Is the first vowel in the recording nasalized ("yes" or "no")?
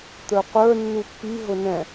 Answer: no